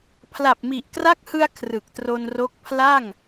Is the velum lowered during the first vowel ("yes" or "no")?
no